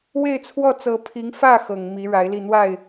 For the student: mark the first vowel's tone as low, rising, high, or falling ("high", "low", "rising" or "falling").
falling